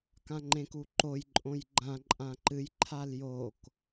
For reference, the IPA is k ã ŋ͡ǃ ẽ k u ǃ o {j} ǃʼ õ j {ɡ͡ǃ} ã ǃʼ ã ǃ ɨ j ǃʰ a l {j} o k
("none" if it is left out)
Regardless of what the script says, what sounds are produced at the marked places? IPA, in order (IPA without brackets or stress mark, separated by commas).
j, ɡ͡ǃ, j